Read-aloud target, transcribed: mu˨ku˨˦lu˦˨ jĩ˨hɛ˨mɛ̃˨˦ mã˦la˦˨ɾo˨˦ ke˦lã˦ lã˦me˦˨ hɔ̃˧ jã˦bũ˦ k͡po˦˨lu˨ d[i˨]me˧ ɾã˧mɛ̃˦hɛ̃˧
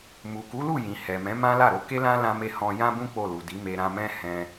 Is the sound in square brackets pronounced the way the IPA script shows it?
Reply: no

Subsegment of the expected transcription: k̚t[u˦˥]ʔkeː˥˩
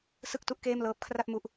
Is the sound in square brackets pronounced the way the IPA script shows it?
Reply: yes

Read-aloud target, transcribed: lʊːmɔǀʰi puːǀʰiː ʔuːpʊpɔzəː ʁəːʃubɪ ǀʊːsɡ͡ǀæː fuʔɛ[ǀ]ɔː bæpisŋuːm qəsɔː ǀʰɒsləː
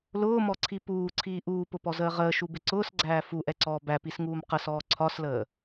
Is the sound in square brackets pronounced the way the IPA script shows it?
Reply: yes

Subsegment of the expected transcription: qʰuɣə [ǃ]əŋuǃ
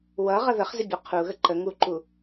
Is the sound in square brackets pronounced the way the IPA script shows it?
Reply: yes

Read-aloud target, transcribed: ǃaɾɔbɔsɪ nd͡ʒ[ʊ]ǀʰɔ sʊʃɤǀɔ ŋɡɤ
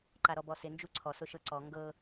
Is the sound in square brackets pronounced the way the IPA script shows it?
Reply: no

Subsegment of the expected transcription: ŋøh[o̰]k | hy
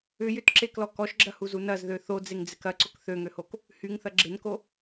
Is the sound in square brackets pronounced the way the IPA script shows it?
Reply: no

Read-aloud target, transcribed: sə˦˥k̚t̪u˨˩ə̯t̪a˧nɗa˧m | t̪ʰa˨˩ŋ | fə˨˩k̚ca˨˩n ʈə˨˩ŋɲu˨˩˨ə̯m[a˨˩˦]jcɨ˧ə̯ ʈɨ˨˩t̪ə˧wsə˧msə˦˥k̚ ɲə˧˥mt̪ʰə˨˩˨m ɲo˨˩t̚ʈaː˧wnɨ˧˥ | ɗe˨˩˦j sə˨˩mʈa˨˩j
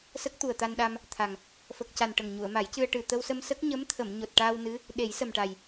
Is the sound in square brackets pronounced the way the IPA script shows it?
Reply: yes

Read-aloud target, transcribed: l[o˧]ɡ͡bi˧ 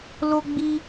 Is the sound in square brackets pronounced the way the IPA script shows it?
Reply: yes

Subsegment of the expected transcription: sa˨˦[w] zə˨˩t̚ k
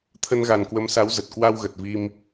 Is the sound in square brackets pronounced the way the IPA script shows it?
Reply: yes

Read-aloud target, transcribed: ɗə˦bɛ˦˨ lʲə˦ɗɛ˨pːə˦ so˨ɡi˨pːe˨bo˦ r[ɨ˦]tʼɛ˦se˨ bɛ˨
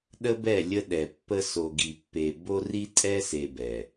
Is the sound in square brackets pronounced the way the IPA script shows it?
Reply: no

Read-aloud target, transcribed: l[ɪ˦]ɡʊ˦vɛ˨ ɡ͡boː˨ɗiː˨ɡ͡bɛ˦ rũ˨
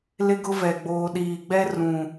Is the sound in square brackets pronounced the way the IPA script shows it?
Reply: yes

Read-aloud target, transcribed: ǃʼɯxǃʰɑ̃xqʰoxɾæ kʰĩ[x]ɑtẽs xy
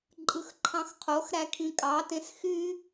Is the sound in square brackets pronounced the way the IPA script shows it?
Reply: no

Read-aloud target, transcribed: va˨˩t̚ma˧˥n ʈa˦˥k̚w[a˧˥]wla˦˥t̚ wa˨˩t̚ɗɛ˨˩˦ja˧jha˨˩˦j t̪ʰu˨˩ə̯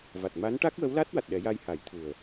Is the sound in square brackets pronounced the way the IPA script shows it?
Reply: no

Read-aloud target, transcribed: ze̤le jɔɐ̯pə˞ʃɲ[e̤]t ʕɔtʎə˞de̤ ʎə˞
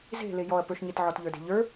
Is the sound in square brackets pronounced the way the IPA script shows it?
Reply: no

